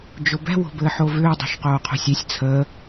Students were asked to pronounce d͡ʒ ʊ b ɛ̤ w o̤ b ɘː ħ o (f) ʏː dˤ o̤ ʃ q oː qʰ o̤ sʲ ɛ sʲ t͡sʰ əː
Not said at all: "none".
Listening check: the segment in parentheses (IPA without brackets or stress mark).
v